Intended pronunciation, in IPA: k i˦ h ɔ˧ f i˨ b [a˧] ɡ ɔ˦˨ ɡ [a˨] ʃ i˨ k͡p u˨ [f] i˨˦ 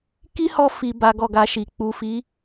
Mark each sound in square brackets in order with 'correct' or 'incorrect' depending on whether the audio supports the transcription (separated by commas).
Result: incorrect, incorrect, correct